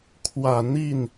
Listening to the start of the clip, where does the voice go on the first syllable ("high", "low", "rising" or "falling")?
low